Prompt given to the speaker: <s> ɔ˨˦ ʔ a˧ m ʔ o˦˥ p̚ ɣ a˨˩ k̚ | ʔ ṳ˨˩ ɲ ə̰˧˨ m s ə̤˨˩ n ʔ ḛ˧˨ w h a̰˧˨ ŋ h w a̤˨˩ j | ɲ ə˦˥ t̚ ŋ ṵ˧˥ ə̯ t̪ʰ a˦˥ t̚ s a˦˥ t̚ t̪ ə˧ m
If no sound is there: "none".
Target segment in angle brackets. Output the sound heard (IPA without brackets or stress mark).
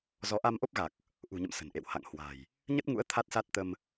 z